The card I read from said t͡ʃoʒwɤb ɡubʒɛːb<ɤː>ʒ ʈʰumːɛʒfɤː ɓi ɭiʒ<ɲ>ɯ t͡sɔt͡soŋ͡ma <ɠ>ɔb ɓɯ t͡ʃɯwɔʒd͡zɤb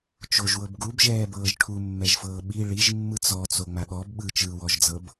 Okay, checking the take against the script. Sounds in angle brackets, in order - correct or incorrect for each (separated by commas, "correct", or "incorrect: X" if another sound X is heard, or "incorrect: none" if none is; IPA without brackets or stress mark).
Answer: correct, incorrect: mː, correct